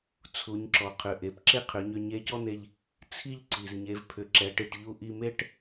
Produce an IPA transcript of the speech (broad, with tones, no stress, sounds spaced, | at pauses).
t͡sʰ u˩˧ ɲ ǁ ɔ˩ qʰ ʏ˩ ʔ e˩ p ǁ e˥ qʰ ʏ˩˧ ɲ ʏ˧ ɲ e˧˥ c ɔ˥ n̪ e˧ ʎ | t͡sʰ i˥ ʎ ǀ i˩ z ɲ e˩˧ v pʰ ʏ˩ ǁ ɛ˩˧ ʈ i˩ ʈ ʎ u˧ ʔ i˧ m e˥ ʈ